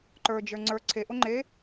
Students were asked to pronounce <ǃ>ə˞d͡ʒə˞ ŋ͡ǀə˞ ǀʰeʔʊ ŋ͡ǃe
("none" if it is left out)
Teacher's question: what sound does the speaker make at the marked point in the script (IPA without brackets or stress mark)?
ǃ